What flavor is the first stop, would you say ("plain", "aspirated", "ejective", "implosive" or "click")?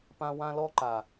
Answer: plain